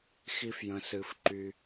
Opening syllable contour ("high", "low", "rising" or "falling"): high